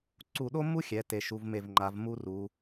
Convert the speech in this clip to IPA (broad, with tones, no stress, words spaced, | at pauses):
ǀu˧˩ɗo˥mːu˥xʲɛ˩˧ te˩˧ʃu˩˧vme˧˩vŋ͡ǃa˩˧v mu˥ru˩˧